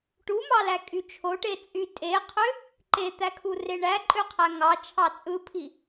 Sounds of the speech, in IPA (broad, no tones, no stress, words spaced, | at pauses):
ʈumɑlækʼy t͡ʃʰoʈe t͡sʼy tʼeqʰø | ǃet̪ækʰure ɳæǃʼøqʰæ ŋɑt͡ʃʰɑ t͡sʼɯpʰi